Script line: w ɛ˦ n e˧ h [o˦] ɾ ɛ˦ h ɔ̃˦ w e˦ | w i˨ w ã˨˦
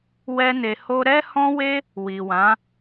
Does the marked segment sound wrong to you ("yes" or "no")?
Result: no